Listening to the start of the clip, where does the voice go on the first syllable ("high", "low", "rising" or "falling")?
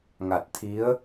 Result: low